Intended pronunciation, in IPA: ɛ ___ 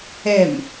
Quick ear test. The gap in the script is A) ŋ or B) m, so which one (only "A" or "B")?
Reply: B